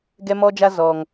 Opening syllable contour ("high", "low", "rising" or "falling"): high